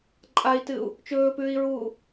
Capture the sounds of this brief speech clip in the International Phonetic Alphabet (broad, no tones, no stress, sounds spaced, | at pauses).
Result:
ǃʼ a i̯ t ɨ u̯ | t͡ʃ ɵː p ʉː i̯ ɹ uː